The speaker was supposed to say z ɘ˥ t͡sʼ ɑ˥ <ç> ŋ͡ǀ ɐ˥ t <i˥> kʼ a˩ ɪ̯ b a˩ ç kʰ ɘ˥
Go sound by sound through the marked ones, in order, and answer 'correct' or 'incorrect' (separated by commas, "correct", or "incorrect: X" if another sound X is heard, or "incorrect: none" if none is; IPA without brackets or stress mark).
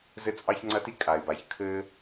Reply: correct, correct